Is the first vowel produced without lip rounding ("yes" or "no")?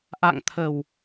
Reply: yes